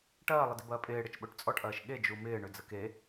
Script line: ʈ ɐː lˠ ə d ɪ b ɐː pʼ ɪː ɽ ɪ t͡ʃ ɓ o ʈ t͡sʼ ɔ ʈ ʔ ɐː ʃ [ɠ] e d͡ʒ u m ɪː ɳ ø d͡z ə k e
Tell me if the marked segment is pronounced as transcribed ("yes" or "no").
yes